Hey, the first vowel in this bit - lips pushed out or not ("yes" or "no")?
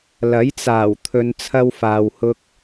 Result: no